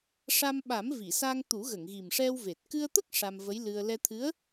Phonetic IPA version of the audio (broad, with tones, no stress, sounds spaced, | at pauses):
ʂ a˧ m ɓ a˨˩˦ m v i˨˩˨ s a˧ ŋ t̪ u˨˩˦ ɣ ə˨˩˨ ŋ ɣ i˨˩ m ʂ ɛ˧ w v e˨˩ t̚ k ɨ˧ ə̯ t̪ ə˦˥ k̚ ʂ a˧ m v ə˧˥ j l ɨ˧ ə̯ l ɛ˧ t̪ʰ ɨ˧˥ ə̯